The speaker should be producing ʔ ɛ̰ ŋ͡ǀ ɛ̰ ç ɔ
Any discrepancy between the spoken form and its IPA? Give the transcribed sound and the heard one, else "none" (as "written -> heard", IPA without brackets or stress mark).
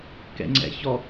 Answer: ʔ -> k